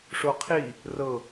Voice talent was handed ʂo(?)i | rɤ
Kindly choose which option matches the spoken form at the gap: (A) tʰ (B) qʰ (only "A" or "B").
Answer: B